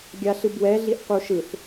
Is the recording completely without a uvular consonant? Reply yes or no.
no